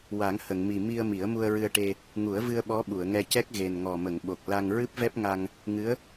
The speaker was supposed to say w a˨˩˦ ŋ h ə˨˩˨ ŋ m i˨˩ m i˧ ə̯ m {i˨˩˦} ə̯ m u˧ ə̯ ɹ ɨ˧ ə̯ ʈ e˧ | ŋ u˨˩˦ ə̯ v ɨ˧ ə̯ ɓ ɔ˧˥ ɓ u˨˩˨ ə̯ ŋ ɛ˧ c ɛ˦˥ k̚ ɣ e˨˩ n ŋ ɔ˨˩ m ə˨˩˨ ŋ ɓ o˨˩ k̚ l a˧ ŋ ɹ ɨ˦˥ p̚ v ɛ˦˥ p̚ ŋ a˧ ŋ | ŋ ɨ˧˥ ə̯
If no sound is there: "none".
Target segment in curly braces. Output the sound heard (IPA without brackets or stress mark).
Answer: i˨˩˦